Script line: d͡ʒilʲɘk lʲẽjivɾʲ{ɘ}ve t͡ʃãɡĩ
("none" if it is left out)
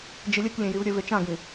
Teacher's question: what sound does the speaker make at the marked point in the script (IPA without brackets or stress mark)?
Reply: ɘ